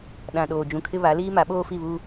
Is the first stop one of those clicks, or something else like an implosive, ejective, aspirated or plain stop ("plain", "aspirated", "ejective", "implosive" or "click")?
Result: implosive